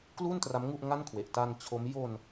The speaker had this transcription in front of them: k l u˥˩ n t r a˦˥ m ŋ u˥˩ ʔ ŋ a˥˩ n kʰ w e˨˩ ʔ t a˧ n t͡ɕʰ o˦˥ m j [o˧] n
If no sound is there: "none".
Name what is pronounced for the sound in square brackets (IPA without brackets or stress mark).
o˧